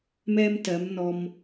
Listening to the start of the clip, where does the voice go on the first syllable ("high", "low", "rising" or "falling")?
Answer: high